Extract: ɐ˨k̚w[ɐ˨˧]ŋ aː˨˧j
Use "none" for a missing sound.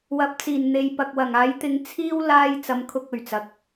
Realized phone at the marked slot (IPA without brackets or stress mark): ɐ˨˩